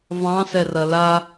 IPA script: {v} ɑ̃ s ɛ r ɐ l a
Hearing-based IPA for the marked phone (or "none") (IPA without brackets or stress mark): v